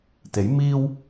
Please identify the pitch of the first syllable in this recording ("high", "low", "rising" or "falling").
rising